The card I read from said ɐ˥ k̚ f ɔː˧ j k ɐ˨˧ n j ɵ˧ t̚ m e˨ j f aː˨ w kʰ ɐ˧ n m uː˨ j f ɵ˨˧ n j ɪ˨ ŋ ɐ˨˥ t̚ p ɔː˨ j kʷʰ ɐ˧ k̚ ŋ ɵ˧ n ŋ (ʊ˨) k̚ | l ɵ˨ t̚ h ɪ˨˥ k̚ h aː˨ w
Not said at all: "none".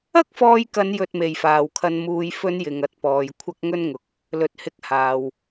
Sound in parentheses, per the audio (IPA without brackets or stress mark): ʊ˨